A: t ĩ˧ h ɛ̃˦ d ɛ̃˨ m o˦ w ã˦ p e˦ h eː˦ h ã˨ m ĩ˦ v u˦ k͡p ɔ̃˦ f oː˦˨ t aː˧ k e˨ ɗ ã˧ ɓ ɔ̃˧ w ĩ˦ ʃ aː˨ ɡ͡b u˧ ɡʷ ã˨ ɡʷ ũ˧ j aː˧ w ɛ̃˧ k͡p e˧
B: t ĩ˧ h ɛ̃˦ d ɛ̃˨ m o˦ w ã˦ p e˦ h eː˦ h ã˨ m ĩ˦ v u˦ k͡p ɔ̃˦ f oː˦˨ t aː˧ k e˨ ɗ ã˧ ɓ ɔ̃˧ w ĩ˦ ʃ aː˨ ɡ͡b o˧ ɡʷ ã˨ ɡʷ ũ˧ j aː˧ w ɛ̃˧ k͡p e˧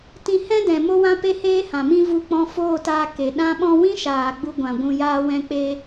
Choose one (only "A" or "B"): A